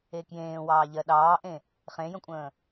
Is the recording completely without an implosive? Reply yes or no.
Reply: no